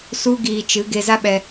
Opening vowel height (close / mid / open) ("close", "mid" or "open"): close